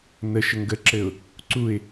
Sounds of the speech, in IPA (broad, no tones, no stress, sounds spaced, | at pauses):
n ə ʃ ə ŋ ɡ ə ǁ ɘ ʊ̯ | ǀ u ɪ̯